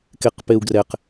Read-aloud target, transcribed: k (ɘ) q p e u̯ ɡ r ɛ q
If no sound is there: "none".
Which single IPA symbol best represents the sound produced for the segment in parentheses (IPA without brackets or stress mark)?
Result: e